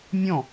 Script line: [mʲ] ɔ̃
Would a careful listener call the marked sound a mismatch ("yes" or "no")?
no